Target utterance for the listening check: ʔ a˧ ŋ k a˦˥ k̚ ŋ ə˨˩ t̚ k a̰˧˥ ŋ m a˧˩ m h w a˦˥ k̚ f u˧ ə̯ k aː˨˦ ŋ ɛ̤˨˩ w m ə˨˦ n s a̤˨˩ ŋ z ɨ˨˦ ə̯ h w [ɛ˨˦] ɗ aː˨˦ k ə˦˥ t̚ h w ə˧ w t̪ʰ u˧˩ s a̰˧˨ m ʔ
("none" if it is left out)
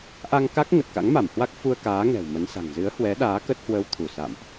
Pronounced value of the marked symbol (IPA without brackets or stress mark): ɛ˨˦